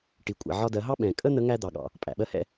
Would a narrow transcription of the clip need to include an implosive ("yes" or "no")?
yes